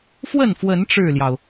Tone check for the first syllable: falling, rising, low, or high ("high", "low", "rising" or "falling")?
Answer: falling